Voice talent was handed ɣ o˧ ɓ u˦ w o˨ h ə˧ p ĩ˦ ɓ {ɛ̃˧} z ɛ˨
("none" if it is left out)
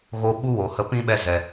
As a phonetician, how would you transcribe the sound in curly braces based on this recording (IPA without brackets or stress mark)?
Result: ɛ˧